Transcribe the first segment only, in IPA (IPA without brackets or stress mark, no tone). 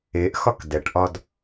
e